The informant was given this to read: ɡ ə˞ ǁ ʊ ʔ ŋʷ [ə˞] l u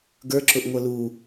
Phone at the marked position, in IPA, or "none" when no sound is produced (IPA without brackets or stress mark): ʌ